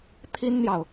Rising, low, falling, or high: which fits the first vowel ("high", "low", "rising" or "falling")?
high